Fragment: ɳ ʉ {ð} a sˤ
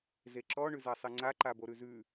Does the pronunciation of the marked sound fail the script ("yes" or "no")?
yes